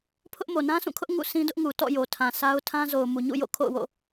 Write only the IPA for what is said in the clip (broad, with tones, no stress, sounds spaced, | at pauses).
pʰ ʊ˦ ʔ m o˨ n ã˦ s ũ˦˨ kʰ ʊ˦ ʔ ŋ ṵ˦˨ s ĩ˦ d ʊ˦ ʔ ŋ u˨ t ɔ̰˦˨ j o˨ tʰ ã˨ s a˦ ʊ̯ tʰ ã˦ z o˨ ʊ̯ m u˨ ɲ ṵ˦˨ j o̰˦˨ kʰ o̰˦˨ ʊ̯ w o̰˦˨